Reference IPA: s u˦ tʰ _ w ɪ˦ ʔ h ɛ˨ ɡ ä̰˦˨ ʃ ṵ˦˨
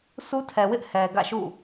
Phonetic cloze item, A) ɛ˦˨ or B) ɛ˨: B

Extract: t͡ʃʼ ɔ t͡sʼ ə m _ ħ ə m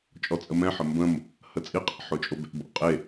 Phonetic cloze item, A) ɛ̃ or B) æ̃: A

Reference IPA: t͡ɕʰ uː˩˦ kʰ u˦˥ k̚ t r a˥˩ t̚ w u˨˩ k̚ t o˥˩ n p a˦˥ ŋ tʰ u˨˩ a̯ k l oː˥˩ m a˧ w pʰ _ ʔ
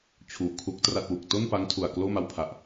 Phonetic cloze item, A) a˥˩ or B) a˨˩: B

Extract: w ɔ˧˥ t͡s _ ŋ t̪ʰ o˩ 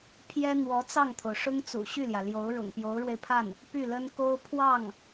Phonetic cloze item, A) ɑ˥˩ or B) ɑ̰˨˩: A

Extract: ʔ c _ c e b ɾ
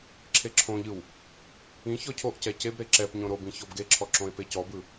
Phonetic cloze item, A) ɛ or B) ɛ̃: A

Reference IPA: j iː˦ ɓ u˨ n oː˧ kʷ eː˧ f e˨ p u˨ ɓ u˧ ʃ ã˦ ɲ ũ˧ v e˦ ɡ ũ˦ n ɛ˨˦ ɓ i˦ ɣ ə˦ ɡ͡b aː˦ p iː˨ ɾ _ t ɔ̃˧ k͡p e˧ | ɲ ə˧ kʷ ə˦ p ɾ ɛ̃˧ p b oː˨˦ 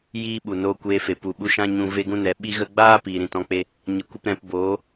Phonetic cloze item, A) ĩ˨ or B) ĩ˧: A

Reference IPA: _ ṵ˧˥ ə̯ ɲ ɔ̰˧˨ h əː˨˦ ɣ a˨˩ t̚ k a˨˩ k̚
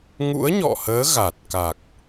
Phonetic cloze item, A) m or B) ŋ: B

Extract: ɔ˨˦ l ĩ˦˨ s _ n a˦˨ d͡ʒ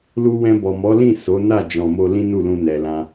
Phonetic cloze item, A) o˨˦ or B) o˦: A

